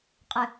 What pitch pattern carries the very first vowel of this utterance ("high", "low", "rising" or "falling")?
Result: low